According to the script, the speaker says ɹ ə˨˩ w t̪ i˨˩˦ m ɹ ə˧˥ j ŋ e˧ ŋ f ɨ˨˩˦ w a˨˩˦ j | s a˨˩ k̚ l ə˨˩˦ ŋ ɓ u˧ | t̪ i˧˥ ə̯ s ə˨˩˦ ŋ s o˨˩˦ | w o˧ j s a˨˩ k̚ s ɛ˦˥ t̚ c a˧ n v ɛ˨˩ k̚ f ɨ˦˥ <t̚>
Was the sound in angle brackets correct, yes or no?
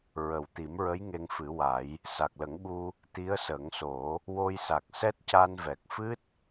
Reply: yes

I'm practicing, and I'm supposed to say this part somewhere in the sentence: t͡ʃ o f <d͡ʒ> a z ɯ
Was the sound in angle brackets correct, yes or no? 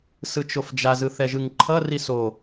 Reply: yes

